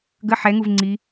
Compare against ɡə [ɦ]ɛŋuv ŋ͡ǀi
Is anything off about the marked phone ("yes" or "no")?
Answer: yes